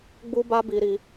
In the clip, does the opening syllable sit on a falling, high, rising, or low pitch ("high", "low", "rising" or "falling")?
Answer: high